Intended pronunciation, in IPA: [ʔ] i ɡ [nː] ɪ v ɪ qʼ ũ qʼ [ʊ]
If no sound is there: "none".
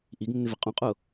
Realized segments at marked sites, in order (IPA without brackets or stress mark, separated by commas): ʔ, nː, ʊ